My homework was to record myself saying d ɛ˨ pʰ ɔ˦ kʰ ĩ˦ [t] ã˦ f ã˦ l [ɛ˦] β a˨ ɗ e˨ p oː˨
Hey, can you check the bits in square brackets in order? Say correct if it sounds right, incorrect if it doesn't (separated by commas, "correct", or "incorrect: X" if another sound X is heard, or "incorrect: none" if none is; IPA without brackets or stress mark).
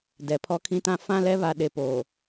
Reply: correct, correct